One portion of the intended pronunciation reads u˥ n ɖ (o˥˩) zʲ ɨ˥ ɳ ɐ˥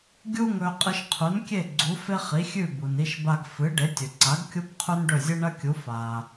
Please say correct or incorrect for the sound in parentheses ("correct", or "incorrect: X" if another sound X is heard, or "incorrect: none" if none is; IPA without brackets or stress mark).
incorrect: ɵ˥˩